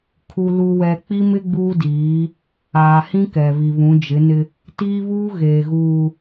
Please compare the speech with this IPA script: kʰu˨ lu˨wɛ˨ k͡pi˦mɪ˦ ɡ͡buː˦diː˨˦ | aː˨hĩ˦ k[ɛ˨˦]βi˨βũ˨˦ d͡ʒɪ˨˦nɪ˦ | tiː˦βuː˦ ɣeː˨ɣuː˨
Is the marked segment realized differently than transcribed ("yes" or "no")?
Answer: yes